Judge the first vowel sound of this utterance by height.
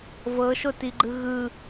mid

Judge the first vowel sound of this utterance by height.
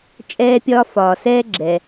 mid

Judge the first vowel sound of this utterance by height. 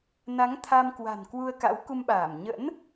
low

